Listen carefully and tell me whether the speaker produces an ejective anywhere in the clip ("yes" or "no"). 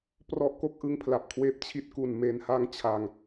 no